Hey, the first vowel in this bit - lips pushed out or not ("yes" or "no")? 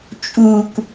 yes